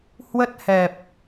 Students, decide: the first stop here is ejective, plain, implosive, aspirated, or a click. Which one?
plain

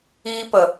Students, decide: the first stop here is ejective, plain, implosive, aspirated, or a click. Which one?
plain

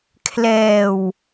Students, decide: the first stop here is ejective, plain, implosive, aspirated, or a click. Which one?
aspirated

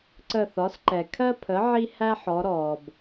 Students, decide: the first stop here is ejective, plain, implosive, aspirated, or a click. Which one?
click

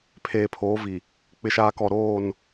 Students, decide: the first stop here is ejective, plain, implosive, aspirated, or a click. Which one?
aspirated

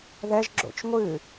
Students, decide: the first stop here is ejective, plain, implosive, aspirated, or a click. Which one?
click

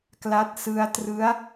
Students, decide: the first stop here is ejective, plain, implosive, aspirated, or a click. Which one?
plain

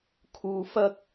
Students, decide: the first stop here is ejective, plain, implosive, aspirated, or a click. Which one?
aspirated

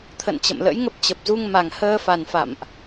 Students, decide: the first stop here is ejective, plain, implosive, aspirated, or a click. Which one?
aspirated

